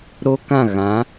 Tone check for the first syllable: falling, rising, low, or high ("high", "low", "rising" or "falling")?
high